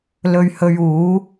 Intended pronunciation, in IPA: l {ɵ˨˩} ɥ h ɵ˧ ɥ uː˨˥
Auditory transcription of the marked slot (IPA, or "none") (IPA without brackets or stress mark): ɵ˧